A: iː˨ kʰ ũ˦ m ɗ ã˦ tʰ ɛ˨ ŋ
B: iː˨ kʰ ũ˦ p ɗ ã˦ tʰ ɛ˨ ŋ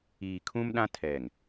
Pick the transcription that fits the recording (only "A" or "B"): A